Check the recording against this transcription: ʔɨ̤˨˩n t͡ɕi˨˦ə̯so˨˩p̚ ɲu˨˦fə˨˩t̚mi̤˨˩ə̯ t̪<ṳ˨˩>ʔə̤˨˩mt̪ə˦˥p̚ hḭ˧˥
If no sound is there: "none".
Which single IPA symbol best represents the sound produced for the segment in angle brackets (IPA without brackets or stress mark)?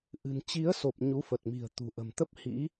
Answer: ṳ˨˩